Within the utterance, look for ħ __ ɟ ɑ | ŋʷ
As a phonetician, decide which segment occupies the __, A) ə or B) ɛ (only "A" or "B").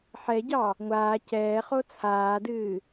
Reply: B